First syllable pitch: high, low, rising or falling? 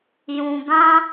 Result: low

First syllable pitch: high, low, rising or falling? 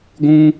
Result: high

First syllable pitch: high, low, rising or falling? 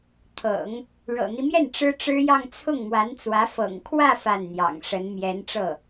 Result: low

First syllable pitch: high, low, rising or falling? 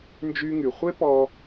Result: high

